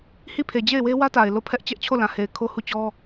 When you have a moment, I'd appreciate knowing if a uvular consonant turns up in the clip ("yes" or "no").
no